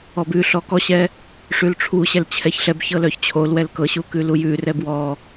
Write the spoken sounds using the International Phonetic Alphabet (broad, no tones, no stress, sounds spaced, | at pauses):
ɔ b ʉ ɬ ɔ k ɔ ɕ ɛ | ʂ ʉ l ʈ͡ʂʰ u ɕ ɛ l t͡ɕʰ ɛ ç ɬ ɛ b ç ɤ l œ ç t͡ɕʰ o l w ɛ l k ɤ ɕ u k ʉ l u j ʉ r ɛ b w ɔ